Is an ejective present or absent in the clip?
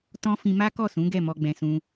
absent